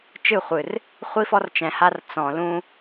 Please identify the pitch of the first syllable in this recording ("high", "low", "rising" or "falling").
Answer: falling